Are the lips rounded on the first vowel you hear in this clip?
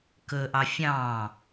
yes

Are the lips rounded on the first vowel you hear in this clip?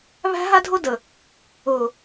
no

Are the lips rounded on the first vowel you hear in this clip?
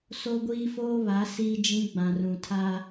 yes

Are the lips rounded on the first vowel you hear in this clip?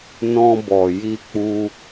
yes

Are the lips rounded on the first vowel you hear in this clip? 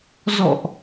yes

